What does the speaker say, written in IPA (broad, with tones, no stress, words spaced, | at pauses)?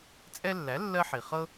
t͡sʼɛ˦lːæ˩˥ lːɜ˦ħi˩ χɤ˦